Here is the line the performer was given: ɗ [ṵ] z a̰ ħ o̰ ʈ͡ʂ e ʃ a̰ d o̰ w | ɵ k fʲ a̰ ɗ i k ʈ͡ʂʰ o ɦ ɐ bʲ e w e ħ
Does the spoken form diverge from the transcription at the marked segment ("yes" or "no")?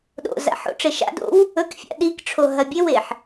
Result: yes